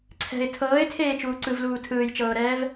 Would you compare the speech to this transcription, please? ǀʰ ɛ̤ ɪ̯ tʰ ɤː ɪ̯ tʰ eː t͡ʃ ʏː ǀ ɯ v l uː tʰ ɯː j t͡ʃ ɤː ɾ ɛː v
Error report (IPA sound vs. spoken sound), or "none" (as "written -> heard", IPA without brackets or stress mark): ʏː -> uː